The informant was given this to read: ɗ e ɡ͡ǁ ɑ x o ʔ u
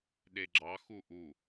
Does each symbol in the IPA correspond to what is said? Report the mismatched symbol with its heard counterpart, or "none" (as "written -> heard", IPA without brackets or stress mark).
o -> u